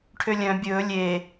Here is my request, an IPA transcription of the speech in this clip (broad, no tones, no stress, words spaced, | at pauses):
ʈʰølʲœ̃ bʲɵː lʲe